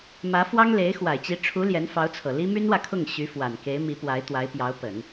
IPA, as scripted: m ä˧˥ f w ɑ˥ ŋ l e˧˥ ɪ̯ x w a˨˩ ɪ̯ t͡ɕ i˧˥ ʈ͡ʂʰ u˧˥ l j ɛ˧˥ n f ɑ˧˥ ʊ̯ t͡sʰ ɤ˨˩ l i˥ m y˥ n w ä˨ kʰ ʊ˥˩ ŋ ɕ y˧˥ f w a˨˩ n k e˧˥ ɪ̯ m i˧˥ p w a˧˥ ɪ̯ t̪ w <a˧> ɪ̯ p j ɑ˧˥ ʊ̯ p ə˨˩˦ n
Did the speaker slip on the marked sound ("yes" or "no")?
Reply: yes